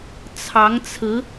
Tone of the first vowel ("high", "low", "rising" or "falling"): rising